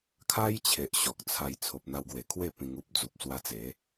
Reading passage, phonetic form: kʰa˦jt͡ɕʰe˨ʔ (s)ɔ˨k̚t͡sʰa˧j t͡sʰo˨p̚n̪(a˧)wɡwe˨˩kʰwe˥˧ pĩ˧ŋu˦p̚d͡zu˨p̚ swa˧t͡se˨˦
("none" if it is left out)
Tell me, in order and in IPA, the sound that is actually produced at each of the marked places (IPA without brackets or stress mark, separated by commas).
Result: ɕ, a˧